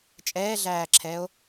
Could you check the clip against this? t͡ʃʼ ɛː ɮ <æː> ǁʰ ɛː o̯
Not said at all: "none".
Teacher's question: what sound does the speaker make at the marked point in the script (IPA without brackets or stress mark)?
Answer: æː